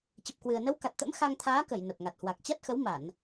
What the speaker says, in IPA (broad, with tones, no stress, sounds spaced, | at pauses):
t͡ɕ ə˨˩ p̚ k w ɨ˨˩ ə̯ n ə˨˦ w k a˨˩ t̚ t̪ ə̰˧˥ m x a˧ ŋ t̪ʰ aː˨˦ k ə˧˩ j n ə˨˩ p̚ ŋ a˨˩ t̚ h w a˨˩ k̚ t͡ɕ a˦˥ t̚ x ə˨˦ w m a˧˩˨ n